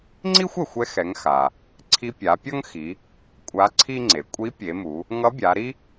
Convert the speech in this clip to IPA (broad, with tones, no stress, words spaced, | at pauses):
ŋ͡ǀi˥xʷɛ˩xʷɛ˧xɛ˩˧ŋ xa˩ | ǀʰi˧pʲa˩˧pʲʌ˥ŋxi˩˧ | kʷʼa˧˥ǀʰi˥ŋ͡ǀe˩˧ kʷʼi˧˥pʲe˩˧mu˩˧ | ŋʌ˧˥bʲa˩˧ɾi˥